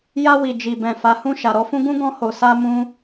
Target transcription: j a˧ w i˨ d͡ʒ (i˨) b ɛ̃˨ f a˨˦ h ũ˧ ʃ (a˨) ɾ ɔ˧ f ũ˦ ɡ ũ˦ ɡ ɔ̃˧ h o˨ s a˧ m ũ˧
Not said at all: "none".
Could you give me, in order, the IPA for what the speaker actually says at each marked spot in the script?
i˨, a˨

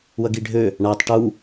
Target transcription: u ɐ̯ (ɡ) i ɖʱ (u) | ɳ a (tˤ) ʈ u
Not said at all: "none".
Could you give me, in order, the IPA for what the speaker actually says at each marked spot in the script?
ɡ, ø, tˤ

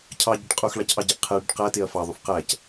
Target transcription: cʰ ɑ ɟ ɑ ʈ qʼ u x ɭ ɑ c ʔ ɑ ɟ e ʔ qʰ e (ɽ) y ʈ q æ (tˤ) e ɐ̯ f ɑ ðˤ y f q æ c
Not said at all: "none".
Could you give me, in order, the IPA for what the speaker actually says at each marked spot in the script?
ɽ, t

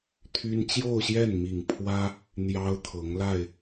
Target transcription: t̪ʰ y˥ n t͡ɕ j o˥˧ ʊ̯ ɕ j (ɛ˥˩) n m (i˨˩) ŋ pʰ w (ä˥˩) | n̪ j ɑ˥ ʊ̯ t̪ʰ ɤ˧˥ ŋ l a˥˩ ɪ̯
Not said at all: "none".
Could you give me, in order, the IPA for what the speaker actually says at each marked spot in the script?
ɛ˥˩, i˨˩, ä˥

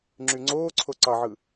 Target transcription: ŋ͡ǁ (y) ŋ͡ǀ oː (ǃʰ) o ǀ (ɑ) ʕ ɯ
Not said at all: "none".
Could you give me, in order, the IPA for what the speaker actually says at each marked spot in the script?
y, ǀʰ, ɑ

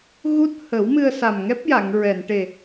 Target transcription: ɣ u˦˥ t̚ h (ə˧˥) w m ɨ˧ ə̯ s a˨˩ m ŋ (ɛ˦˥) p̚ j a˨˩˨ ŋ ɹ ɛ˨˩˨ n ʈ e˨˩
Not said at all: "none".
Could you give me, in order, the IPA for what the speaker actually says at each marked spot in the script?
ə˨˩˦, ɛ˦˥

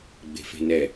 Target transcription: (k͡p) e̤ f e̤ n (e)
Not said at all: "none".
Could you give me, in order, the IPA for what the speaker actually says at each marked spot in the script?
ɡ͡b, ɛ

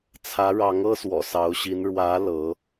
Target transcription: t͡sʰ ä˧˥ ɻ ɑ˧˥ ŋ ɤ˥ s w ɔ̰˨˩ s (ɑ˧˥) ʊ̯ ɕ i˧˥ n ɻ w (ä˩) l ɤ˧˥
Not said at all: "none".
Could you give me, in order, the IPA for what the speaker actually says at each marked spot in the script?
ɑ˧˥, ä˧˥

